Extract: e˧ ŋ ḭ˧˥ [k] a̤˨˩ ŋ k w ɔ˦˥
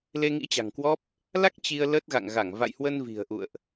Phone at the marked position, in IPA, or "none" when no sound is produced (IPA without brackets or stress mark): t͡ɕ